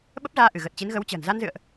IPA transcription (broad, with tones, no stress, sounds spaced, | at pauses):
ɓ ə˦˥ p̚ z aː˧ ʔ ɨ˧˩ ɣ ə˨˩ t̚ t͡ɕ i˨˦ n ɣ ə˨˦ w t͡ɕ ə̤ː˨˩ n z a˧ n z ɨ̰˧˨ ə̯ ʔ